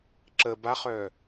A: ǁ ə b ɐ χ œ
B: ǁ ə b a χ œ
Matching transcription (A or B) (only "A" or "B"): B